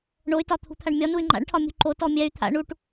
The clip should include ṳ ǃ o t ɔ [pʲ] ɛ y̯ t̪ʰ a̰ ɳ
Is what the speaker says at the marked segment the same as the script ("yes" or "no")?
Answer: no